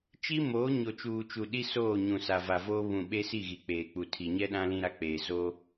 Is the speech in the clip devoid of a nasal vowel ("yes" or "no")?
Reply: no